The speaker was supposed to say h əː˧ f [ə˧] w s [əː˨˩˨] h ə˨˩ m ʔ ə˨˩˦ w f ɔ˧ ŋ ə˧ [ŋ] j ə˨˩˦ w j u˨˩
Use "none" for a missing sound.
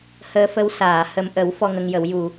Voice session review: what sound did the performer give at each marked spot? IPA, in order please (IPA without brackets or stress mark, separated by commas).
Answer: ə˧, aː˨˩˨, ŋ